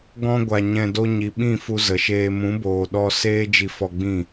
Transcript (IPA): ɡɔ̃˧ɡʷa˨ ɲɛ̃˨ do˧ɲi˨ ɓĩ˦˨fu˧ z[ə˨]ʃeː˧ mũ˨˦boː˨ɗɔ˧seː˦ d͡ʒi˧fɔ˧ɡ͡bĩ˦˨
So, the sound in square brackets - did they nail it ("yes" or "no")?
yes